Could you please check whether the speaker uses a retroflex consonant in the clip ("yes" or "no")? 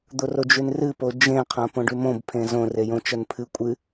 yes